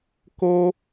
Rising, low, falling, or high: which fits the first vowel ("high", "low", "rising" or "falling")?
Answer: high